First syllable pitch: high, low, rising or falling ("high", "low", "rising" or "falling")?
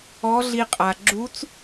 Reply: rising